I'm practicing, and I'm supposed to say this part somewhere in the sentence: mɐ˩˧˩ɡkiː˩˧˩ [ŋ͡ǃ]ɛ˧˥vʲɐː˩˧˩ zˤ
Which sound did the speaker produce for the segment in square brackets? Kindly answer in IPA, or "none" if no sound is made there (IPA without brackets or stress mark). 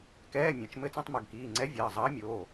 ŋ͡ǀ